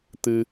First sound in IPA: t̪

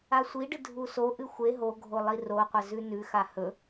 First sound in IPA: a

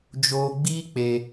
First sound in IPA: d͡ʒ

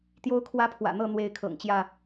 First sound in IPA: t̪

